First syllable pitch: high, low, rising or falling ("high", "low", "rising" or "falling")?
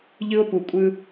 high